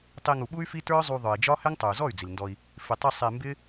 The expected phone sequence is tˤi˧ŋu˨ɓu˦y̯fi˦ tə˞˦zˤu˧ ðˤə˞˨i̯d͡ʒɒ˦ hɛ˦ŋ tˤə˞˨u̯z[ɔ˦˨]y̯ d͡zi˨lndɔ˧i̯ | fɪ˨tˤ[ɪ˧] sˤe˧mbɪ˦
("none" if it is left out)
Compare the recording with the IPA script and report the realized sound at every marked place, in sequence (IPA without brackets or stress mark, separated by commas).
ɔ˦˨, i˧